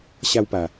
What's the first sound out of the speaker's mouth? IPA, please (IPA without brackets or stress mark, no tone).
ɕ